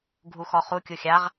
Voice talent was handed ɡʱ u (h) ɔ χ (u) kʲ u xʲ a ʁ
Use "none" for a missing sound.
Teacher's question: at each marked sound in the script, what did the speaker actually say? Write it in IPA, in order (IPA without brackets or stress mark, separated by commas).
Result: x, u